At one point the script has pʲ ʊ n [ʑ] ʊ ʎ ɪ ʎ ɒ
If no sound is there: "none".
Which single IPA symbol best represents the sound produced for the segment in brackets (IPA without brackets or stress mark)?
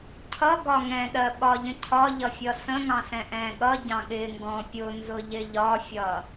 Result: z